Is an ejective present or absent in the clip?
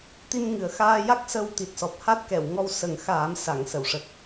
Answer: absent